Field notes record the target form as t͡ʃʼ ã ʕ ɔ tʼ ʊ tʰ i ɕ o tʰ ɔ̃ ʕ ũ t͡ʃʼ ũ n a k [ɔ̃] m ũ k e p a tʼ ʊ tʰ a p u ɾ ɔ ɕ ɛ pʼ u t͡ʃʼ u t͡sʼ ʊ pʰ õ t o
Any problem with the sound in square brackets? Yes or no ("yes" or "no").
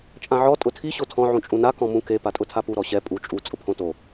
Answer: no